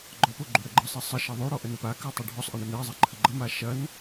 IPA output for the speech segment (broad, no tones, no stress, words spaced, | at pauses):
ɡ͡ǃɔpo ɡ͡ǃoɽəɡ͡ǃʌsˤe sˤə ʃɐðˤoɽɔ ʔənəpakɜ tˤɛɖʱɔsˤʔɐ ɳənɛzˤɛ ǃʰəɡ͡ǃʌma ʃɐn